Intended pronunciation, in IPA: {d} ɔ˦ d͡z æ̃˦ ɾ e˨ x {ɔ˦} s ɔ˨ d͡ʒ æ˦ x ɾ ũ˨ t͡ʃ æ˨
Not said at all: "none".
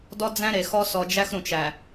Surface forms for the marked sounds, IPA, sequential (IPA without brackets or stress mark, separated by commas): d, ɔ˦